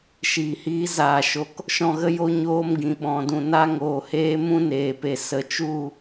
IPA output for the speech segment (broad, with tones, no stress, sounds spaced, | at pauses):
ʃ iː˨ h iː˧ z aː˨ ʃ o˨ k | ʃ ɔ̃˦˨ ɣ ə˦ j o˦ ɲ oː˧ m ɡ ĩ˨ ɓ ɔ̃˨ d ũ˨ n a˧ ŋ oː˨ h eː˧ m ũ˦ n eː˨ p e˨ s ə˨ t͡ʃ u˦˨